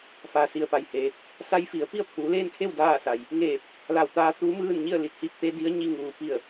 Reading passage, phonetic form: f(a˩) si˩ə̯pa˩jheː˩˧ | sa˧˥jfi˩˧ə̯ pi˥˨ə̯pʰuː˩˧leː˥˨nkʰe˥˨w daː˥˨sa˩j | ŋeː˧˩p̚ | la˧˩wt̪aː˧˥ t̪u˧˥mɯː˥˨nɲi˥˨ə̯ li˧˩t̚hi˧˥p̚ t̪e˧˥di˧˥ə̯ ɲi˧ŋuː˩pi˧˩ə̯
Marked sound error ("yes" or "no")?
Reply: no